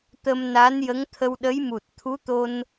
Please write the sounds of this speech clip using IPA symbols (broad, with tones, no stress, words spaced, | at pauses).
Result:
t̪ə˧mna˧˥njə˧˥ŋ t̪ʰə˧wɗə˧˥jmu˨˩t̚ t̪ʰu˧˥t̪o˧n